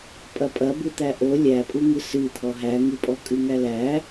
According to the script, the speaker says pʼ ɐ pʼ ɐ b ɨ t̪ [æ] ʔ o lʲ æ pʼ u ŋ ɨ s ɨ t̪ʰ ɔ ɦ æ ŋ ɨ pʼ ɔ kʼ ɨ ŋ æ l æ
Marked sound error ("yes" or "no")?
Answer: no